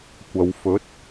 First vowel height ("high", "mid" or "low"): low